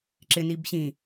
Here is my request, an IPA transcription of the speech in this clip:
ǁɪ nibɕĩ

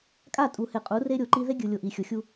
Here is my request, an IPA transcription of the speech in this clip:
kʼa˦˨tʼu˨he˨qʼu˨˦ re˦ɾʲo˨ǃi˦ ðe˦ɡʲɯ˨lʲo˨ ʔi˨xʲo˨xʲu˦

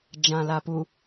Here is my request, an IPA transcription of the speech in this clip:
d͡ʒãlapu

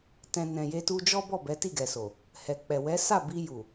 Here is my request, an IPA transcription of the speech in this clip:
tɛ̃˧ nɛ̃˨je˧ tu˧d͡ʒɔ˦bɔ˦˨ bɛ˨˦ti˦˨ɡɛ˨so˨ | hɛ˨k͡pɛ˨ wɛ˨˦sa˦˨ bi˧ju˨

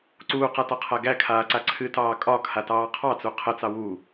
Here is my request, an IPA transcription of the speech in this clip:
ǀuːqatɒqʰæ ɡækʰaːǀa ǀʰɨtɑː kʼɒkʰatɑː qʰɑt͡su qʰət͡sɑ wu

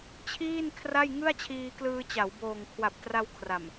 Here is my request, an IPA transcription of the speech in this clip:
t͡ɕʰiː˥˩n kʰra˥˩jŋɯ˥˩a̯t͡ɕʰiː˧klɯː˧ t͡ɕa˩˦w boː˨˩ŋkʰwa˨˩p̚tra˧w kʰra˨˩m

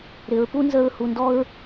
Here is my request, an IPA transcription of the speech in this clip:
ɾɪ˩˧ɹpu˥ nzə˧ɹ hu˩ndɔ˧ɹ

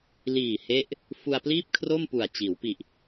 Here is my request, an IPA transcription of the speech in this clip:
liː˨˩ he˦˥ʔ | fu˧a̯pliː˥˩p̚kʰro˥˩mpu˨˩a̯ t͡ɕiː˩˦wpi˨˩ʔ

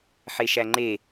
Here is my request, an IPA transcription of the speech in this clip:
ħeʃæŋ͡ǃe

